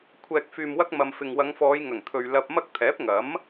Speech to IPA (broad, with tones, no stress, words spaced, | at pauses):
kʷʰɛː˨k̚fyː˨mwɐ˧k̚ mɐ˨mfɪ˨ŋ wɐ˨˧ŋfɔː˨˧j ŋɐ˨˩ŋt̪ʰɵ˨ɥ lɐ˧p̚mɐ˥k̚ t̪ʰɛː˨˥p̚ŋɐ˨˥m